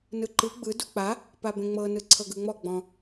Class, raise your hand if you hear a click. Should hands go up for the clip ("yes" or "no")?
yes